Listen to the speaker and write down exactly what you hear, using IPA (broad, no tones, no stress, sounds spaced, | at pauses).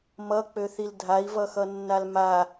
m ʌ k͡p ø θ i l dʱ a i̯ v ʌ x ʌ nː a l m a